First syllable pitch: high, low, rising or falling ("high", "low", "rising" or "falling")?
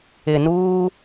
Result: low